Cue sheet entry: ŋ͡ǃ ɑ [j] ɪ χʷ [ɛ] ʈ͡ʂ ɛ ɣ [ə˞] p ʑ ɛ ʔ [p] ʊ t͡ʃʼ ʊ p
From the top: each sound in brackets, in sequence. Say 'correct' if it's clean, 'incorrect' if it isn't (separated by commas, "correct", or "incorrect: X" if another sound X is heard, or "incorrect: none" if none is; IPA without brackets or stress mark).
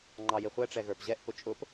correct, correct, correct, correct